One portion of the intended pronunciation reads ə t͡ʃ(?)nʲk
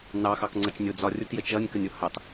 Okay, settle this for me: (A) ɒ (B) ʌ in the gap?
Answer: B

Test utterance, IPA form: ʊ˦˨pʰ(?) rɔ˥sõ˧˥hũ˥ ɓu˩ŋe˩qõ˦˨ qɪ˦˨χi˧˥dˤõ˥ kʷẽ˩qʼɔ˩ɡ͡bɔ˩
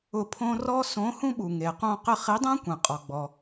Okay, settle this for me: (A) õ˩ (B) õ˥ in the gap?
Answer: B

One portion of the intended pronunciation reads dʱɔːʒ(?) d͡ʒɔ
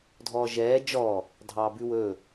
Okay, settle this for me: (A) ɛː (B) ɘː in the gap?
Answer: A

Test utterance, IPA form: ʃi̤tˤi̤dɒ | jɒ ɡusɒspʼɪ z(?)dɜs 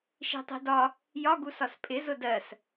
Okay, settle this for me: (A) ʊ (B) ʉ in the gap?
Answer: A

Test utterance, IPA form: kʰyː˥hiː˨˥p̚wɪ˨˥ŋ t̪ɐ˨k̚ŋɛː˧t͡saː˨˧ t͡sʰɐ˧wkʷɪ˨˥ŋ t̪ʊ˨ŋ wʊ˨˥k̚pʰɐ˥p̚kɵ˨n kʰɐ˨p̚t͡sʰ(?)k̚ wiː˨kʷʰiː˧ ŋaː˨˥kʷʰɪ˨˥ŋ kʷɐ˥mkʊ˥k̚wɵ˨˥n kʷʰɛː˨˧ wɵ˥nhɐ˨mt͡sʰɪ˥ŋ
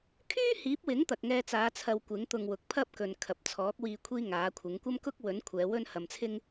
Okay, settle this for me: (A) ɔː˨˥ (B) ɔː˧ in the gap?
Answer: A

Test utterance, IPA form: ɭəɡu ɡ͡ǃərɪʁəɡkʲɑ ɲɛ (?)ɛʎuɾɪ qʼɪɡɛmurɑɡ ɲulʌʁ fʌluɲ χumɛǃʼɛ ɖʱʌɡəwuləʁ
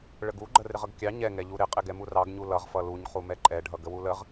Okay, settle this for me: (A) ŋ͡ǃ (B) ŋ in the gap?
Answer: B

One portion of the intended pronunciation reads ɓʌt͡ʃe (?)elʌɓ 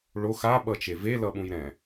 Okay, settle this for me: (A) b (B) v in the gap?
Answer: B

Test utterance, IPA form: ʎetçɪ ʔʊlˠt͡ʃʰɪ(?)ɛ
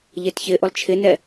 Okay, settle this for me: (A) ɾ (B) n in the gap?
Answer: B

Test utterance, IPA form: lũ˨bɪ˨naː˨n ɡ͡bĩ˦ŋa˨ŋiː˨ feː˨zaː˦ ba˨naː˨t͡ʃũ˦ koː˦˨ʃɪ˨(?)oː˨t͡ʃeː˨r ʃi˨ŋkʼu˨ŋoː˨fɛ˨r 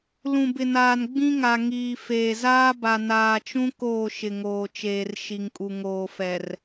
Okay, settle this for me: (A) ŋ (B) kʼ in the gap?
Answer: A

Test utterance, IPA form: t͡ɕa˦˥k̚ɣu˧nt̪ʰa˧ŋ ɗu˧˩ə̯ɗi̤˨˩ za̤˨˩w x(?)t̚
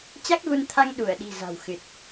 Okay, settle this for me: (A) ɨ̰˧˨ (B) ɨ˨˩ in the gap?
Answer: B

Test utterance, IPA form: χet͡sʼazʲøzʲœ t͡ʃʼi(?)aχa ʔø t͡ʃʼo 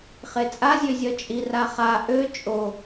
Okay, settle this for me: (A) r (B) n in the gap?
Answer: A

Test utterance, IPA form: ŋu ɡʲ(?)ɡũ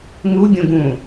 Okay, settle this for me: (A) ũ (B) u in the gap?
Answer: A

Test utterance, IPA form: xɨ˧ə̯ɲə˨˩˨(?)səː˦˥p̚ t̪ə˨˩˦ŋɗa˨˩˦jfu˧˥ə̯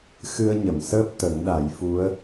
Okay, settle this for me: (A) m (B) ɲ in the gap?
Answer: A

